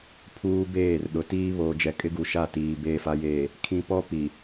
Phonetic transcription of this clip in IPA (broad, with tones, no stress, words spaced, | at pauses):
pʰuː˦beː˦˨r ɗʊ˨tiː˦ βoː˨d͡ʒɛ˨kʼɪ˦ɡu˨ ʃa˦˨tiː˨ beː˨fa˨jeː˨ | kʰĩ˦ pɔ˦pi˨